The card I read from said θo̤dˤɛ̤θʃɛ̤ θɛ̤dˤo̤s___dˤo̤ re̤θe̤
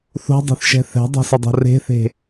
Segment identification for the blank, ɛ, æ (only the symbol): ɛ